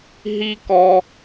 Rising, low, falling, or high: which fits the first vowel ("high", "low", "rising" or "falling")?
high